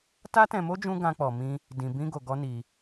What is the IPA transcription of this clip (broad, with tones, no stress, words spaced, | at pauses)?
ta˦tɛ̃˧mo˦ d͡ʒũ˦ ɡã˦k͡pɔ˧mĩ˦ | dĩ˧bĩ˦ ɡo˧ɡɔ˦ni˧